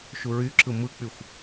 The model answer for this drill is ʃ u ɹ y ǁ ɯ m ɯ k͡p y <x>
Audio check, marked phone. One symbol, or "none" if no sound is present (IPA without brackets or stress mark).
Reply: xʷ